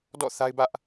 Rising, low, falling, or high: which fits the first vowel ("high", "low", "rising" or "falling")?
falling